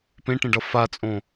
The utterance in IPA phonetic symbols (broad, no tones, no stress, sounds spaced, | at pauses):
p ẽ ʈ ẽ ɖ ʌ f a t͡sʼ õ